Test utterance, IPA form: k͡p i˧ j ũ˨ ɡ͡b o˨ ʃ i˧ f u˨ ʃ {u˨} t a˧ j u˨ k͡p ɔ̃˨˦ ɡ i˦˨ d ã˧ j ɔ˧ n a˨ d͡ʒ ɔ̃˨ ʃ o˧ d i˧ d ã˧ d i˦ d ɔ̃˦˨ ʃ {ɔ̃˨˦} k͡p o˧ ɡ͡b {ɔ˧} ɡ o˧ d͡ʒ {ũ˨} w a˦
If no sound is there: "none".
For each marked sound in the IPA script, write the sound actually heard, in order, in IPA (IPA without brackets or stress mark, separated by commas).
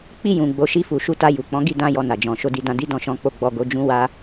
u˨˦, ɔ̃˨˦, ɔ˧, ũ˦